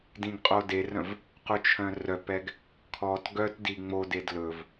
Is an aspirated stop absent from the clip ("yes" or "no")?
no